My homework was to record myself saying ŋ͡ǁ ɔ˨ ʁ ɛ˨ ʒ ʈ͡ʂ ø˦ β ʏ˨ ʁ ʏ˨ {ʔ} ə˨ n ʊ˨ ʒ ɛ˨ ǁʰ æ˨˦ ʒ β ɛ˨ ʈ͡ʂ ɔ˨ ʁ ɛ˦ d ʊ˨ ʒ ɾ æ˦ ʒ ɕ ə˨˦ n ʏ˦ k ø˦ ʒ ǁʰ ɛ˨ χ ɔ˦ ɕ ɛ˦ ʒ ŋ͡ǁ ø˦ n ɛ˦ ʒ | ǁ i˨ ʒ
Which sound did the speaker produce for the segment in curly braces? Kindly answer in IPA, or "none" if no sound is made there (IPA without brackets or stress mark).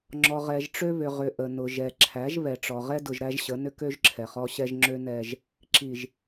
ʔ